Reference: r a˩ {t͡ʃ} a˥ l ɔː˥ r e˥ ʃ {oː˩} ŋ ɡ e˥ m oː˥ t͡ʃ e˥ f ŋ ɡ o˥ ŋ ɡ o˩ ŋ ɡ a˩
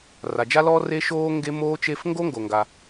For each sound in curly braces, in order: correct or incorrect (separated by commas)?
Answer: incorrect, incorrect